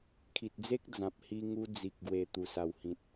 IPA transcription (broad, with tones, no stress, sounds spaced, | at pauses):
kʰ i˨ t̚ d͡z e˦ k̚ d͡z ã˨ p̚ h i˧ ŋ u˧ d͡z i˨ k̚ ɡ w e˨˩ t̪ u˨˩ s a˨˩ w h ĩ˨ t̚